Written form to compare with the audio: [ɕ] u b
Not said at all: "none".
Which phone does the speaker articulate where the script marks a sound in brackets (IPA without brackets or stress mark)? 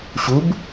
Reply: ɕ